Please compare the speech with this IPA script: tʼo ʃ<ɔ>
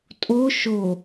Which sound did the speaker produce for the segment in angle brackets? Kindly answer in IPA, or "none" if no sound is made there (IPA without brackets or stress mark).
o